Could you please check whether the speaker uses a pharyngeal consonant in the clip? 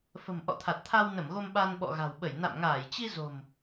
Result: no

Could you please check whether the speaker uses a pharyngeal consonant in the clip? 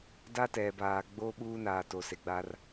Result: no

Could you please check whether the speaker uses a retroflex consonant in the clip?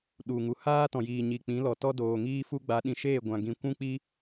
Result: no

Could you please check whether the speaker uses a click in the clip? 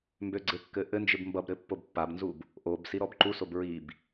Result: yes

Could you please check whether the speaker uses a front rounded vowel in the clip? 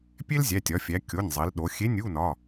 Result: no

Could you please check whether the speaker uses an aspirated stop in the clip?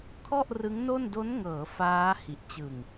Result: yes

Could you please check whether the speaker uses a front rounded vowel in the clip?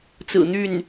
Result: yes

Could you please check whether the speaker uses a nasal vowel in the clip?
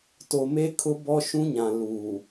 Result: yes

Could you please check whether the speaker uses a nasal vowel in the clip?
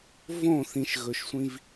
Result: yes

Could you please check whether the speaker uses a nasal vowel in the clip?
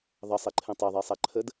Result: yes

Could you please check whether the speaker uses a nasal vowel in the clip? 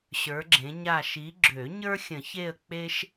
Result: yes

